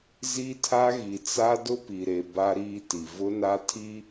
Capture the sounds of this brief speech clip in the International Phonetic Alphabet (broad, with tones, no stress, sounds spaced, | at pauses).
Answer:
z i˦ tʰ a˦ ɣ i˨ t͡s a˦ d ʊ˦ p i˨ ɾ e˨ b a˦ ɾ iː˦ t i˨ v ʊ˦ n a˦ tʰ i˦